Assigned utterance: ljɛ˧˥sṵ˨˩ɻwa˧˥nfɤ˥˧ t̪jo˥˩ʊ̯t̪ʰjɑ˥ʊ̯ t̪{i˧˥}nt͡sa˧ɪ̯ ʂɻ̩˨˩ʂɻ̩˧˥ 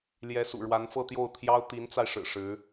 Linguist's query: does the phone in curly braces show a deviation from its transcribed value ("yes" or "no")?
no